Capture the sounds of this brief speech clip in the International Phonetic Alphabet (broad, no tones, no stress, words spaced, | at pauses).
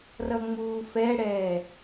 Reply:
rʌŋ͡muːfɛɽɛː